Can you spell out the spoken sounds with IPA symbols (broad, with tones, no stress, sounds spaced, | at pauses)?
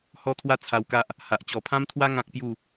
h ɔ˦ t̪ʰ w a˥˧ t͡sʰ a˧ w k a˦ ʔ | h a˨ ʔ t͡ɕ ɔ˨˩ pʰ ã˦ m t̪ʰ w a˦ ŋ ã˦ k̚ p j u˥˧